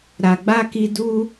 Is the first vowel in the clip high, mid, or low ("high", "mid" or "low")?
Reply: low